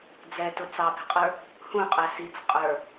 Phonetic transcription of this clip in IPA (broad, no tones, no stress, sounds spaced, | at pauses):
d͡z ɛ t ʊ t͡s ɑ b ɛ̤ qʼ ə˞ | h ũ qʼ æ s i t͡s qʼ ə˞